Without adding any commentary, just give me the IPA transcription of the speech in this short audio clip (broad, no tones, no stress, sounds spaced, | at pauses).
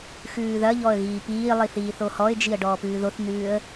x ʉː ð ɐ ʎ ɔ ə̯ ɣ iː p iː lˠ i θ iː θ o h ɔ ɪ̯ d͡ʒ i ə̯ ɖ ɔː p ʉː ð o θ n ʉː ə̯